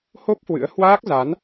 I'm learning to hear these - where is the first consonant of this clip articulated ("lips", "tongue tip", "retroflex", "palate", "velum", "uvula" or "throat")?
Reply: throat